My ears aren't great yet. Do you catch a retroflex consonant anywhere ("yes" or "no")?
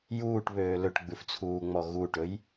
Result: yes